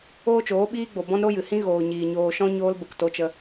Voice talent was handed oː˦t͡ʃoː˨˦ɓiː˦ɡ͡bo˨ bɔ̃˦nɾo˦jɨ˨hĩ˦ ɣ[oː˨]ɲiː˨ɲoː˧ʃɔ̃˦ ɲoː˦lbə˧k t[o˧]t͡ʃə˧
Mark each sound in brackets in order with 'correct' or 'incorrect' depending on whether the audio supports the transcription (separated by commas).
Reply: correct, correct